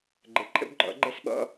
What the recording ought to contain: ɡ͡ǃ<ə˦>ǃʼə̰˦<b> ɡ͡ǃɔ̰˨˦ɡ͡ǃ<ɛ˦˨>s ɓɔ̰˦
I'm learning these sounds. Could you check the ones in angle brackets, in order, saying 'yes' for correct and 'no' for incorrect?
no, yes, no

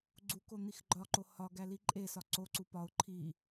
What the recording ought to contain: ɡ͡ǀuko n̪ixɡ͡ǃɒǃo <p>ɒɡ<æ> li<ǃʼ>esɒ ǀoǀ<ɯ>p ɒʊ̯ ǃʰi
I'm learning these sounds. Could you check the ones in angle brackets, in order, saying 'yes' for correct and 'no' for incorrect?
no, yes, yes, no

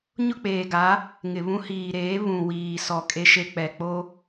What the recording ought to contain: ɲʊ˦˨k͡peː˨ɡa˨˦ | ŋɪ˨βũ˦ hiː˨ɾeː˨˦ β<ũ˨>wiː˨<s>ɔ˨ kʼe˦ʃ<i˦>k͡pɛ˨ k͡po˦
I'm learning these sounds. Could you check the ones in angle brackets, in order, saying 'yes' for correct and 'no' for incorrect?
yes, yes, no

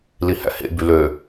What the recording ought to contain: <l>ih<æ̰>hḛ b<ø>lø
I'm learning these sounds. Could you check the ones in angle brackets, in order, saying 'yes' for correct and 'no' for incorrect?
yes, yes, no

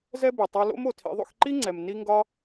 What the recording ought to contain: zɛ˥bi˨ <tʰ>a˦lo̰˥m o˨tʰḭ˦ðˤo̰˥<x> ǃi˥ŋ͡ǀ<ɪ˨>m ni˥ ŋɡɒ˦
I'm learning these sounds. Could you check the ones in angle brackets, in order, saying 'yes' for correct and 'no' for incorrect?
no, yes, no

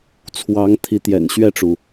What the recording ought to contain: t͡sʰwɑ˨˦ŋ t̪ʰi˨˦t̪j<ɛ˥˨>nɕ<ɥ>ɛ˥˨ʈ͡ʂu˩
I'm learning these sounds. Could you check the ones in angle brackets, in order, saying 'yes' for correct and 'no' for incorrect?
no, yes

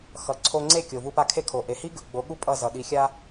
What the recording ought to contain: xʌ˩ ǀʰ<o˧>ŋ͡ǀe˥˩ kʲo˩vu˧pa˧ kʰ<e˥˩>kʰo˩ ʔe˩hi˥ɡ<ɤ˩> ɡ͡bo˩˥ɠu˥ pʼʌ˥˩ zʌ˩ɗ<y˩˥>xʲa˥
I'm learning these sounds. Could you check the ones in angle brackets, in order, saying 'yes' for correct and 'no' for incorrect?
yes, yes, no, no

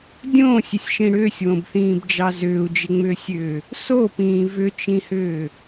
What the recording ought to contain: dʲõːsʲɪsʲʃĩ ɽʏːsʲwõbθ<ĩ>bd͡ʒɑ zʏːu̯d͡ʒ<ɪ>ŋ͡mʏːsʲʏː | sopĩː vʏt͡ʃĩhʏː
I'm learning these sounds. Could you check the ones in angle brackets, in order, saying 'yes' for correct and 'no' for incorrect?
no, yes

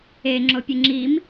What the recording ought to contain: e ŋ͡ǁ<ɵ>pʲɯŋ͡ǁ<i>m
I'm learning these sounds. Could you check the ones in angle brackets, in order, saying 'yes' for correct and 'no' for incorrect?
no, yes

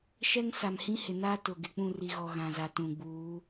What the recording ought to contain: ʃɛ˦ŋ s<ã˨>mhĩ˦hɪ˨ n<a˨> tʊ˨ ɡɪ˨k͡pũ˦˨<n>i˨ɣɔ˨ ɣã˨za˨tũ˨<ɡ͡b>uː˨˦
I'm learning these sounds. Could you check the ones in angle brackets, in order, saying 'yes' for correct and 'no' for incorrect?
no, no, no, yes

